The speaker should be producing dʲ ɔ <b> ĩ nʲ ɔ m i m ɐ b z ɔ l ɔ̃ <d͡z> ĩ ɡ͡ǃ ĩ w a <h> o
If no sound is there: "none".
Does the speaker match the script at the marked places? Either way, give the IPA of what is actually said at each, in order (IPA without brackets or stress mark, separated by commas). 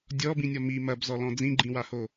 b, d͡z, h